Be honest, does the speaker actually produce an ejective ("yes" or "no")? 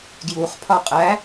yes